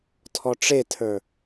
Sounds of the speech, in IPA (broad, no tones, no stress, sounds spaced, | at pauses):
tʰ ɔ ʈ͡ʂ e tʰ ə˞